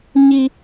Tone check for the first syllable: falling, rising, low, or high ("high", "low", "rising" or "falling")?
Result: high